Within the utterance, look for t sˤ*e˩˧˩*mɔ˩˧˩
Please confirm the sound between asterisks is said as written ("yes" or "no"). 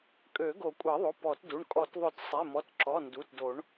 yes